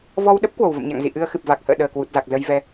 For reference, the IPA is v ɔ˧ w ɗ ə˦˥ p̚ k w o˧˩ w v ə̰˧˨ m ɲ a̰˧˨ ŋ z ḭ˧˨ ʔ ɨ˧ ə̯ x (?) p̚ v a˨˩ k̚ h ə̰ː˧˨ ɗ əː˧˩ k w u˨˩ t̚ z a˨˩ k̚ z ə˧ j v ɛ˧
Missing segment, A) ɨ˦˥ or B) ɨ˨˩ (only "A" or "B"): B